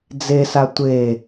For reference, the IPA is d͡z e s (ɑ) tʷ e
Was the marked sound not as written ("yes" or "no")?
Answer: yes